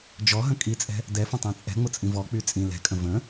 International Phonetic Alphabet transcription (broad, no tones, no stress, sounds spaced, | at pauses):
d͡ʒ ɔ ɦ ə̃ kʼ i t͡sʼ ɛ̤ | d ɛ f ə̃ tˤ ɛ̃ t͡sʼ ɛ̤ ŋ͡m ʊ t͡sʼ ĩ v ɔ k͡p y t͡sʼ ĩ l ɛ̤ kʼ ə̃ v ə̃